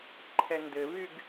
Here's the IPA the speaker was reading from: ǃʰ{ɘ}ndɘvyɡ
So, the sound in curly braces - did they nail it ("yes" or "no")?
no